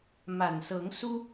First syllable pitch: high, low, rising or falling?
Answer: low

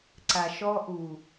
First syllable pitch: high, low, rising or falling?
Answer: low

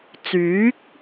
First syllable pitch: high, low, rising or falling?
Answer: rising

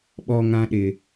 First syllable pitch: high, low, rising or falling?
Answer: low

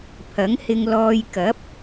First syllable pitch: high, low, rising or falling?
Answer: rising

